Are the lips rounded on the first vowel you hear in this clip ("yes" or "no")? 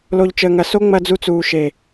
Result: yes